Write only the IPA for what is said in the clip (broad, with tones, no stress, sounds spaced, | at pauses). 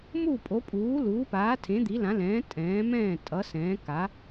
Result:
m u˥˨ pʼ o˨˥ pʼ uː˨˥ l uː˨˥ p aː˨˥ tʰ ẽ˨˥ d̪ i˨˥ l ã˨˥ l ɛ̃ː˨˥ tʼ ɛ̃ː˨˥ m ɛ̃ː˥˨ tʼ ʌ˨˥ s ɛ̃ː˨˥ k a˨˥